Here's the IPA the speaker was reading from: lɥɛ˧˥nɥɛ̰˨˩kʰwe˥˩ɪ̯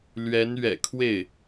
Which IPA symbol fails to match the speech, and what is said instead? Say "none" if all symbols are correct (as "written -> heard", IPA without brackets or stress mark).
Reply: none